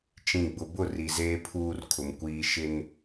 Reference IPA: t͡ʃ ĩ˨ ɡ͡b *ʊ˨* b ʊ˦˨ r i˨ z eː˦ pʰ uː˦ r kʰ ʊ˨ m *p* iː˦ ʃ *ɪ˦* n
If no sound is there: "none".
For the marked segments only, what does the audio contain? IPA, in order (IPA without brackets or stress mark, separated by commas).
ʊ˨, kʷ, ɪ˦